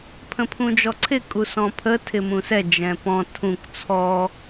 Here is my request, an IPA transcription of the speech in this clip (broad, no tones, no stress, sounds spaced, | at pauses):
pʰ ə̃ pʰ ũ d͡ʒ ɔ ǀʰ ɪ kʼ u s ɔ̃ pʰ ə tʰ ɪ m ũ s ɛ d͡ʒ ɛ̃ p ɔ̃ tʰ ũ k t͡sʰ ɔ